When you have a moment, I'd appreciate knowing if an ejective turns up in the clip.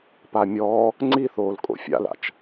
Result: yes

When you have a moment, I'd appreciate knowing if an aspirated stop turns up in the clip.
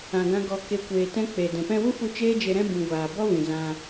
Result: no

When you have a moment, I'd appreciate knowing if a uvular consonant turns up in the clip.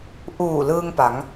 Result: no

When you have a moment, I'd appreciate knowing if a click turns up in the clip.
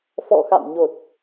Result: no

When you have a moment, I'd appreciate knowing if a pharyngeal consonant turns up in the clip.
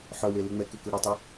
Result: yes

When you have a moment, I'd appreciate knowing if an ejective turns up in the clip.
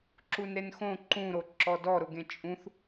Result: yes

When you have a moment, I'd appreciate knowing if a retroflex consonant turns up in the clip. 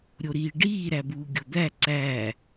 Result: yes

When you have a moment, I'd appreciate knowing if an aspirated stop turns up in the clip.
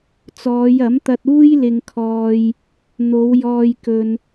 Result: yes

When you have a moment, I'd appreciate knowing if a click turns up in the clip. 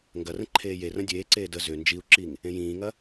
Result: yes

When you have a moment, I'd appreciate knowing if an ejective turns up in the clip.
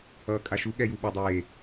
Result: yes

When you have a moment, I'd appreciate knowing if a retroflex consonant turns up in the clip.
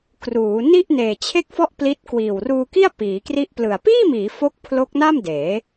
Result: no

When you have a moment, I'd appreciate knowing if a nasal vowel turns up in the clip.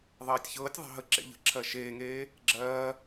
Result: no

